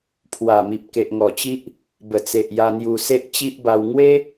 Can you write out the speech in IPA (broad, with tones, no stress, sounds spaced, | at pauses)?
pʰ w a˨˩ m i˨ p̚ k e˨ ʔ ŋ ɔ˨˩ t͡ɕ i˦ ʔ | b ə˨˩ t͡s e˨ ʔ j a˧ n̪ j u˧ s e˦ ʔ t͡ɕ i˦ ʔ b a˧ w ŋ w e˦